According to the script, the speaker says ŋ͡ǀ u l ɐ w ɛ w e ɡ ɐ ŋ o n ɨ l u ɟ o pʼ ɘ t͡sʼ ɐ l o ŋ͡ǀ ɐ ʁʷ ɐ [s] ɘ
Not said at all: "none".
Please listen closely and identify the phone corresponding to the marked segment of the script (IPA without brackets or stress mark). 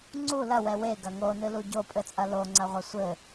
sʷ